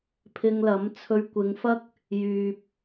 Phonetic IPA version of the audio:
pʰ ɪ˧ ŋ l ɐ˨˥ m t͡sʰ ɵ˧ ɥ kʷ ɪ˨˧ ŋ f ɐ˥ k̚ | j yː˨ p̚

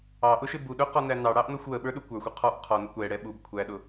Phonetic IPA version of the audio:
ɑ ʔ ʊ ʃ ɪ b u ɗ ʊ q ɔ n æ n ɑ ɽ ɑ ʔ n ɔ xʷ w ə ɓ ə˞ ɗ u kʷ ə˞ xʷ u qʰ ɔ ʔ qʰ ɔ n ə kʷ ɛ ɽ ɛ ɓ u b kʷʰ æ ɗ ʊ

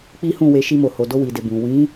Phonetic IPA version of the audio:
k͡p i˦ h ũ˦˨ w e˧ ʃ i˧ m o˨ h o˨ d o˧ w i˨ d e˨ b ũ˨ w ĩ˨˦

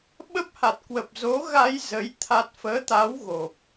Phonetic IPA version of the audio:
ɓ ə˦˥ p̚ h a˨˩ t̚ k w ə˨˩ p̚ z o˨˦ ɣ a˧ j z ə˨˦ j t̪ʰ a˦˥ t̚ f əː˨˦ t̪ a˨˦ w ɣ o˨˩ p̚

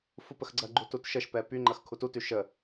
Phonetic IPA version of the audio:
f u p ə x ɡ͡ǀ ɐ ɡ͡ǃ u t u t ʃ ə ʃ p ɛ p y ŋ͡ǃ ɐ x kʰ u t u t y ʃ ə

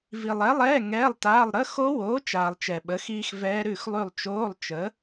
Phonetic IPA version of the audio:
v i˨ lˠ ɛ˨˥ lˠ ɛː˧˥˧ ŋ ɛː˧˥˧ lˠ t aː˧˥˧ lˠ ɾ ə˧˥˧ x o˦˥ w oː˨˥ t͡ʃ aː˨ lˠ t͡ʃ ɛ˨ ɓ ə˨˥ x iː˦˥ x v ɛː˦˥ ɾ ʉ˦˨ x lˠ ʉ˦˨ lˠ t͡ʃ oː˧˥˧ lˠ t͡ʃ ə˨˥

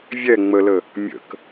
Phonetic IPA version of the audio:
vʲ ɛ ŋ͡m ə l ə | mʲ ə̰ k

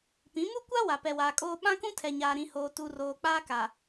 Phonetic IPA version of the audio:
p ĩ˨˦ m u˦ kʷ a˦ w a˨ p ɛ˨ w aː˨ kʼ oː˦ ɓ ã˦ k ũ˦ tʰ ɛ˨ ɲ aː˨ ɾ ĩ˨ h oː˨ t u˨ r oː˨ k͡p aː˦ k a˨

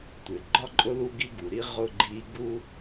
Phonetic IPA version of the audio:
tʷ ɪ˩ ɡ͡ǃ ɒ˥ ǃʼ ʊ˥ l u˥ ɡ i˧ ɡ u˩ ɾ i˧ ʁ ʊ˧ ɡ͡ǃ i˧ ɡ u˥

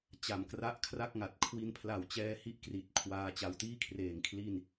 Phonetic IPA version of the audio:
t͡ɕ a˨˩ m k r a˥˩ ʔ kʰ r a˥˩ k̚ ŋ a˨˩ t̚ kʰ w i˧ n pʰ l a˨˩ w t͡ɕ ɛː˧ h i˦˥ ʔ k r i˨˩ t̚ kʰ w aː˦˥ t͡ɕ a˧ w t iː˥˩ kʰ r eː˨˩ ŋ kʰ l i˥˩ n

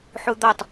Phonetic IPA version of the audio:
ħ u d̪ ɒ tˤ

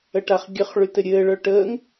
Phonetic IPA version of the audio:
ə ʈ a χ ɡʲ ə χ ɭ y t ɘ ɾʲ ɘː ɭ œ ʈ əː ŋ

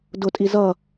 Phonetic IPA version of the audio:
d ʊ tʼ i z ʌ

